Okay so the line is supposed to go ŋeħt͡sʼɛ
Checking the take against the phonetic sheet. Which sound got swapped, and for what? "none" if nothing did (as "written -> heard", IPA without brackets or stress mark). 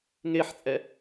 none